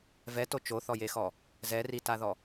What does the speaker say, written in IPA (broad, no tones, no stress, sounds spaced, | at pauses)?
v ɛ t o t͡ʃ o θ ɔ j e x ɔ | z ɛ r i t a ð ɔ